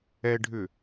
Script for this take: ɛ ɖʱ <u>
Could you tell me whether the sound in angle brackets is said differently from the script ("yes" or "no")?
yes